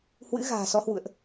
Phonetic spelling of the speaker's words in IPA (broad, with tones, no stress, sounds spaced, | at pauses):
h w ɨ̰˧˥ ɣ a̤ː˨˩ s ɔ˨˦ h w ṵ˧˨ ə̯ ʔ